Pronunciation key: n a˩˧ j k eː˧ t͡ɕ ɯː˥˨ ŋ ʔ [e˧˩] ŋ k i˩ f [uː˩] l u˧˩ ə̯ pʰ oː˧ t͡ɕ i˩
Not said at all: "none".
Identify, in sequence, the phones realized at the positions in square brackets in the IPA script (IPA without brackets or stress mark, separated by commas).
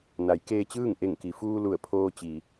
e˧˩, uː˧